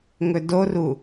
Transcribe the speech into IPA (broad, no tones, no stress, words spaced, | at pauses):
ŋɵdoru